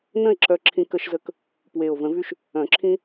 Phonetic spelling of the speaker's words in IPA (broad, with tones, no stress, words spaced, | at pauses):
nə̃˥˧e̯ǁœ˧ ǁʰĩ˧kə˧ʃzə˧k | pwe˨˩o̯və̃˨˩˦vy˧ʃ | œ̃˨˩˦ǁʰĩ˧